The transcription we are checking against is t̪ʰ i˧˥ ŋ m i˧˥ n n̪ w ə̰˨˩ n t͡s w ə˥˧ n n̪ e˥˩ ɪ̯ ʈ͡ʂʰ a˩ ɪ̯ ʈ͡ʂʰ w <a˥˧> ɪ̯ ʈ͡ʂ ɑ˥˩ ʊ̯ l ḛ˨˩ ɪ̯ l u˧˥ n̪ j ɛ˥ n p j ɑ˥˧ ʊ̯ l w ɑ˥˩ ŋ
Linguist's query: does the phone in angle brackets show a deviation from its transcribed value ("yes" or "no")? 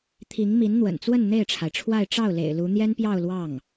no